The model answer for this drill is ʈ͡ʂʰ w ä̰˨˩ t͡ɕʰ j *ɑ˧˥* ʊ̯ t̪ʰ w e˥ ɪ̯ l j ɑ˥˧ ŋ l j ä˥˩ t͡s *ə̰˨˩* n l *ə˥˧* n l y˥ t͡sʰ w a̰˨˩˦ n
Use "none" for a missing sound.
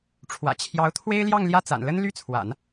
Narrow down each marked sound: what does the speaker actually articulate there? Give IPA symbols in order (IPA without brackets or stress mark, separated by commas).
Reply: ɑ˧˥, a̰˨˩, ə˥